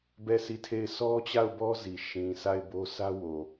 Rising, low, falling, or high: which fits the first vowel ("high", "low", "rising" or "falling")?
falling